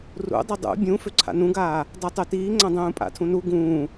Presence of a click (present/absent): present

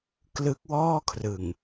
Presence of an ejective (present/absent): absent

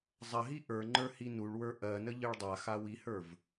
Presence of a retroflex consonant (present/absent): present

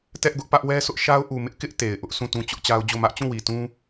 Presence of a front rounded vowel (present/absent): absent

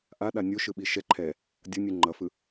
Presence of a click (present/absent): present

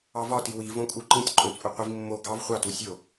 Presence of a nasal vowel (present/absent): present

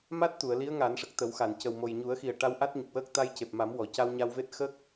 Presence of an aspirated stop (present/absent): absent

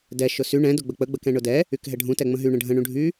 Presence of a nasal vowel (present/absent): present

